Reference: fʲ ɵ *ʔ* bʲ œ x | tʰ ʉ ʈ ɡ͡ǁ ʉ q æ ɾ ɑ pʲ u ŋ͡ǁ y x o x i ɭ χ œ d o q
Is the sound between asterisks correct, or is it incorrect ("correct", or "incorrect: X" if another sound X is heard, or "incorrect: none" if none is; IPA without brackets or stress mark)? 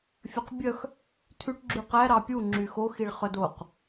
incorrect: q